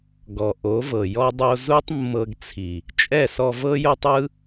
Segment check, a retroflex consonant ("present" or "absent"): absent